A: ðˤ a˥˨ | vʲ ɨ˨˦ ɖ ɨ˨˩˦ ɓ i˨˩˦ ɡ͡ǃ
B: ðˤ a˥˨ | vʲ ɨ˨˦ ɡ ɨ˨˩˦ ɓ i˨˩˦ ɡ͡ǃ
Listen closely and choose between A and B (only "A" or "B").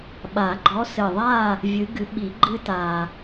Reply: B